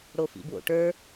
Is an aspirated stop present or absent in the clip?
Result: absent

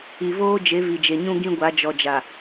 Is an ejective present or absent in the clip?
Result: absent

